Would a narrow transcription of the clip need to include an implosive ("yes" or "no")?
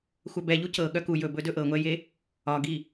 yes